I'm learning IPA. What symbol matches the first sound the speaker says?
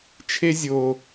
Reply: t͡ʃʰ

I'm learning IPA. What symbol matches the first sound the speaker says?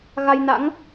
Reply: ɣ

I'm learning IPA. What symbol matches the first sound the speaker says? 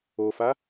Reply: o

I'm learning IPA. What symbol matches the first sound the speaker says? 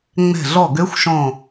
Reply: ŋ͡m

